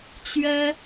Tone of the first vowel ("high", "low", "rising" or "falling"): high